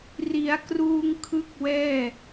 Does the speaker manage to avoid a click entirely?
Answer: yes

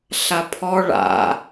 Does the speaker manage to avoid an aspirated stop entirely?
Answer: no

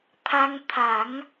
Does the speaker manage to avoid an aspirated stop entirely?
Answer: no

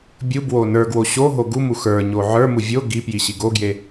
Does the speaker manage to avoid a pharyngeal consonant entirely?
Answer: no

